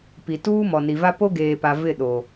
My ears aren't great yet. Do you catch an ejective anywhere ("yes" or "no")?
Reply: no